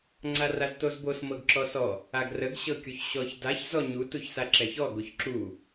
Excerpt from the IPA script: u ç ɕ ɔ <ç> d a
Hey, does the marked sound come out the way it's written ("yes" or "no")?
yes